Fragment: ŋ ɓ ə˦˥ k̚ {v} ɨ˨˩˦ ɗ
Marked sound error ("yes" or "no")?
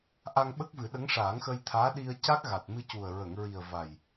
no